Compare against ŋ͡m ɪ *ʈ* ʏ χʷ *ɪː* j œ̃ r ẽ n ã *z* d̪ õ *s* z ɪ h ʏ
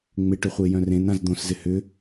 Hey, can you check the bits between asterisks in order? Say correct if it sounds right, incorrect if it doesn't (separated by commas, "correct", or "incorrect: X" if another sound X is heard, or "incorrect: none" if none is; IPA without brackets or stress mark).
correct, correct, correct, correct